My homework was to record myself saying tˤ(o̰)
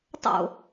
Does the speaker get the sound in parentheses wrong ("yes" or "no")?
no